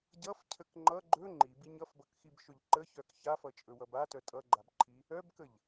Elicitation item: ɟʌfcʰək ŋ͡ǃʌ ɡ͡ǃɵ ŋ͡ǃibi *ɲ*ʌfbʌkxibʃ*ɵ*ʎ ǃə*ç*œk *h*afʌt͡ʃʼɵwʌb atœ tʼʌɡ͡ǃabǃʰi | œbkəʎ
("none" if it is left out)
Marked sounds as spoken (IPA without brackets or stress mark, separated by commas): ɲ, ɵ, ç, ç